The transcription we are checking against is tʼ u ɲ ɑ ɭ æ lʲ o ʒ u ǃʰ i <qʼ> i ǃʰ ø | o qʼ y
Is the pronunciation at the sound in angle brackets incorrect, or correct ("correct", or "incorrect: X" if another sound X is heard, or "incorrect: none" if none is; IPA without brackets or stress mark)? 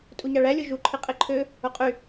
correct